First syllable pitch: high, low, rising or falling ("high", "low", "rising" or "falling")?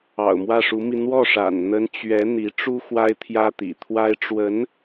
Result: low